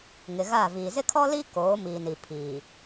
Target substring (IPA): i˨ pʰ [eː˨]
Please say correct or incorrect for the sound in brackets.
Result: incorrect